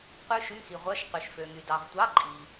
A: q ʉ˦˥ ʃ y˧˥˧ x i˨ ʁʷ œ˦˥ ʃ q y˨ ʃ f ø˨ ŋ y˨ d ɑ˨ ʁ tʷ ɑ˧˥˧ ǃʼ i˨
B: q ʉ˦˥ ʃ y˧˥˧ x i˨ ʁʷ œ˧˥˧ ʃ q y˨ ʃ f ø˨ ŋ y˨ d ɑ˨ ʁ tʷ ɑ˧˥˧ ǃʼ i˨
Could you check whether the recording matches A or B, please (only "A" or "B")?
B